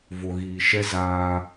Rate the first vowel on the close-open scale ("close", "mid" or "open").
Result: mid